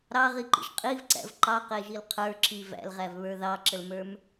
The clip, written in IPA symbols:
ɾ ɑ ʁ i ǃ ḭ ʒ qʼ i v ǀ æ̰ v ǃ ɑ q e ʒ i l qʰ ə˞ ǁ i v æ̰ l ʁ æ v β ə˞ ð ɑ ǁ ə l m ə˞ m

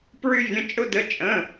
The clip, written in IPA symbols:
p ɹ y˥ vʲ ə̃˧˥˧ t͡ʃʼ ʊ˥ d ə˧˥˧ t͡ʃʼ ə̃˧˥˧

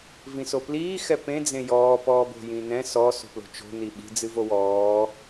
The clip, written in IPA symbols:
v ĩ s o p l iː x ɛ p ẽ d͡z ẽ j ɔː p ɔː b o̤ j ĩ n ɛ̃ s ɔ s o̤ p l o̤ t͡ʃ o̤ n i ɓ i̤ d͡z ɨ v o w ɔː

